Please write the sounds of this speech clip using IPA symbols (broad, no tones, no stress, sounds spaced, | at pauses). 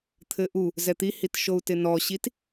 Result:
t̪ʰ ɘ ʔ u | z ɛ t̪ i h i t ʃ o u̯ t ɪ n ɔ ɕ i t